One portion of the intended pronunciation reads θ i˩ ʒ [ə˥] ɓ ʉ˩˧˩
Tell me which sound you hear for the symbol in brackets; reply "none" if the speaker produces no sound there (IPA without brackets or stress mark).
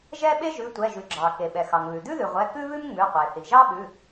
ɑ˥